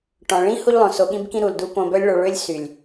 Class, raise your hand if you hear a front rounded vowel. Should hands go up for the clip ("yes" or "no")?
yes